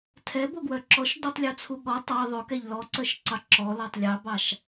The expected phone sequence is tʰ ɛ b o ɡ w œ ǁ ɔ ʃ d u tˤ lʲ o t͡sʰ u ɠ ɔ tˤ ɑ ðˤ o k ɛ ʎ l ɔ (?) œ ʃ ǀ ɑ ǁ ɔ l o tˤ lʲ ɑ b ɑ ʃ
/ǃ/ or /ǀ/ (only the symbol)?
ǀ